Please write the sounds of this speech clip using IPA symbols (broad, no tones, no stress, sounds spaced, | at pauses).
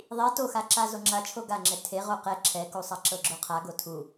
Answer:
ðˤ i t o x a ǁ a z o ŋ͡ǁ a t͡ʃʰ o ɡ a ŋ͡ǁ ɛ tʰ e ʁ o q ɛ ǁʰ ɛ k u sˤ a ǁ ɤ ɡ͡ǁ o qʰ a ɡ o tʰ u